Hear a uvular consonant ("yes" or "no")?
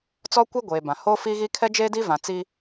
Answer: no